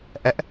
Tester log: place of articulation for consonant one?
glottal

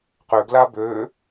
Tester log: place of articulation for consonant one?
uvular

